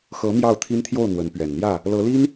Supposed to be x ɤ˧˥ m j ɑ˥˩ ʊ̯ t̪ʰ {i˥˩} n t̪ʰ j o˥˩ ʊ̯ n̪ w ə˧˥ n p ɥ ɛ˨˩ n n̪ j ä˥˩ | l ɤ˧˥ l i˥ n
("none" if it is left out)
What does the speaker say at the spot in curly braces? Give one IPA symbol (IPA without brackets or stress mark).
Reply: i˥